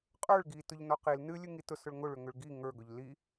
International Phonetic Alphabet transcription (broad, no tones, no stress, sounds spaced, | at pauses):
qʼ ə˞ ɭ ɡ i t ʊ ʎ n ɔ q i l n ɨ lʲ ɨ ŋ i t ʊ s ʊ ɭ ŋ ʊ ɭ ʏ ŋ ʏ ɭ ɡ i ŋ ə˞ ɡ ʊ ʎ l i